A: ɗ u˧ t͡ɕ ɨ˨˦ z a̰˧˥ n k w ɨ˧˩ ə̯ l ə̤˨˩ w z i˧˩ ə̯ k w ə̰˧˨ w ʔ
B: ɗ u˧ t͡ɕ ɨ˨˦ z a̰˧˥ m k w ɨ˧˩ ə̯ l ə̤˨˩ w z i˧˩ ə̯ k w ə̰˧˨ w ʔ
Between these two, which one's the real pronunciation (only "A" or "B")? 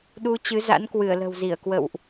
A